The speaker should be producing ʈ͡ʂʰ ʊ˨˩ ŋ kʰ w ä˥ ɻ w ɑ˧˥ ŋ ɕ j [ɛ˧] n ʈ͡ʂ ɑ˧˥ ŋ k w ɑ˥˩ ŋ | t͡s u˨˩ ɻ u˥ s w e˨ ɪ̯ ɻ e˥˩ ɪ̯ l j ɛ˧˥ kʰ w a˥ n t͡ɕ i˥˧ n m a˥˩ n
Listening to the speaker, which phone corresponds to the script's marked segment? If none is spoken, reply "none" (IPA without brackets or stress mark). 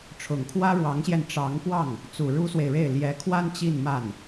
ɛ˧